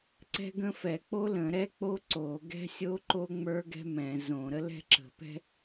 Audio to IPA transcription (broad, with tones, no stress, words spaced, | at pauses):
ǀɛ̤˥ɡə̃˥ fɛ˧˩˧k͡po˥lə̃˧˩˧ ɾɛ˥k͡po˥ ǀo˧˩˧ɡɛ̤˥sʲo˥ ǃo˥ŋ͡mə˞˥ ɡɛ̤˥mɛ̃˧˩˧ zõ˧˩˧ɾə˥ lɛ̤˥ǁə̤˧˩˧pɛ̤˥